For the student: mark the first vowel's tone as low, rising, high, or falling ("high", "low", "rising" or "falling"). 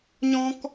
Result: high